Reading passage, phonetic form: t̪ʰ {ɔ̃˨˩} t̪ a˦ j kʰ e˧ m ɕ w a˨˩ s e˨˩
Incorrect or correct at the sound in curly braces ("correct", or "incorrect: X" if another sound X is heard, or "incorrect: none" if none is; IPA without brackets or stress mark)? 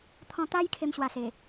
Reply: incorrect: ɔ̃˧